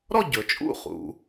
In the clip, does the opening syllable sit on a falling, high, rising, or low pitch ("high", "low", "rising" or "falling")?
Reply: falling